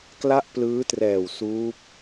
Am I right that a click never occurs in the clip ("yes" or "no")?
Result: yes